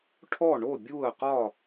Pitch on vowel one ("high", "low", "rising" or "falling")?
falling